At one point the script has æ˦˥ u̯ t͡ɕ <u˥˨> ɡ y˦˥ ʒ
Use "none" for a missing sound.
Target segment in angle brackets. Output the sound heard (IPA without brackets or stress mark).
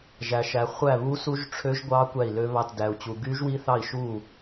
u˦˥